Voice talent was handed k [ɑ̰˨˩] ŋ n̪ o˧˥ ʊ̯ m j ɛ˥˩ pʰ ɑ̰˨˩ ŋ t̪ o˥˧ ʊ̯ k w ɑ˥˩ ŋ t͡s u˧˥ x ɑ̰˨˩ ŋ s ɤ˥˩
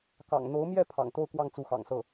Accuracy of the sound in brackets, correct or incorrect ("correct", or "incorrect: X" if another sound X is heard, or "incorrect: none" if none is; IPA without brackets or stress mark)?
correct